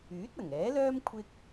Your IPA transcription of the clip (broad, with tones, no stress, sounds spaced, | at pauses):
yː˨˥ t̚ ɐ˨˩ ŋ ɛː˨˥ l œː˥ m kʷʰ ɪ˥ k̚